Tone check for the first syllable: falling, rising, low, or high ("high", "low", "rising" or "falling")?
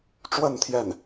falling